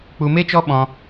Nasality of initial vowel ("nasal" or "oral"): oral